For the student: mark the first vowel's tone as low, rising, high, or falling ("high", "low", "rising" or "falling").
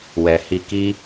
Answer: low